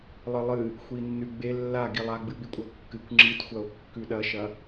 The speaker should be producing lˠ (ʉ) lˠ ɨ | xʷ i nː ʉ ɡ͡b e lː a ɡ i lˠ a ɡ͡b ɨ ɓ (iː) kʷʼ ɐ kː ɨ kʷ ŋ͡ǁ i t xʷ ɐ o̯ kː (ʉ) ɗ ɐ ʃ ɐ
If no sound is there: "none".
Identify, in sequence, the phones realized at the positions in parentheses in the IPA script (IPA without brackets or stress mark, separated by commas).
ɨ, i, ʉ